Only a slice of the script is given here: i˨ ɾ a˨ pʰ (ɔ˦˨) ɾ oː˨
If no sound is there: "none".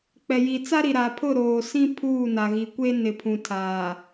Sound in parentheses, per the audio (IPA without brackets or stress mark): ʊ˦˨